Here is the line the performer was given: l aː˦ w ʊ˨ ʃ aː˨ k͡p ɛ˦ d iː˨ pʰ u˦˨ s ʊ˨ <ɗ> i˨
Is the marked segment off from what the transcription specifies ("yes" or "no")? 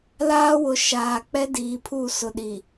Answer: no